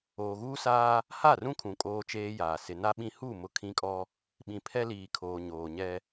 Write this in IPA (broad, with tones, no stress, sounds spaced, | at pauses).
oː˨ ɣ uː˦ s aː˦ | h a˦˨ r ũ˦ kʰ ũ˨ kʼ oː˦ t͡ʃ eː˦ j aː˨ s ɪ˨ n a˦ ɓ ĩ˦ h u˦˨ m ʊ˦ kʰ ĩ˦ kʼ ɔ˦ | ɓ ĩ˨ pʰ ɛ˦ l iː˨ kʰ oː˨ ɲ oː˨ ɲ ɛ˦